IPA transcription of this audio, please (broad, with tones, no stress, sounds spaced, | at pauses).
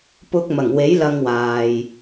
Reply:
p ʊ˧ k̚ m ɐ˨˩ ŋ w e˨˥ j l ɐ˧ ŋ w aː˨ j